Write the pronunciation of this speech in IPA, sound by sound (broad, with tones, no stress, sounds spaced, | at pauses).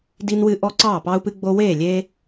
d i˦ n w ɨ˦ ʔ ɔ˦ ǀ ɑː˥˩ p ɑ˦ u̯ p ɨ˦ ɡ͡b o˦ w eː˥˩ lʲ e˦